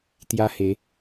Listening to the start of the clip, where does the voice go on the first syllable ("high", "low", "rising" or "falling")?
high